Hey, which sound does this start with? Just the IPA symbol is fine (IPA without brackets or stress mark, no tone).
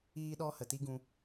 iː